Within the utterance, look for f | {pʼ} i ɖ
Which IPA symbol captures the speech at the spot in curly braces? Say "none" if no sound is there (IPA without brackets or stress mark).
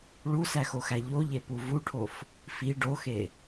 f